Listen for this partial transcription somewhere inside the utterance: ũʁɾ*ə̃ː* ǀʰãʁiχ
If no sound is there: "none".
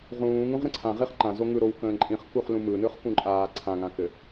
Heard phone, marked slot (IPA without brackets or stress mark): ə̃